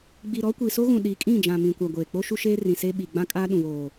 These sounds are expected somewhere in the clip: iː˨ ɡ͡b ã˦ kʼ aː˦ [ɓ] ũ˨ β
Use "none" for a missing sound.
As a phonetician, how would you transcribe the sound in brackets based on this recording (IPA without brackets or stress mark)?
ɗ